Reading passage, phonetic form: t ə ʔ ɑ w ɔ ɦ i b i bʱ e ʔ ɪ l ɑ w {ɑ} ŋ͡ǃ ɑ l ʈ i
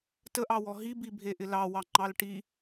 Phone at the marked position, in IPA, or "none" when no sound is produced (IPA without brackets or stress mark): ɑ